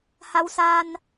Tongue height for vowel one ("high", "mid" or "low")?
low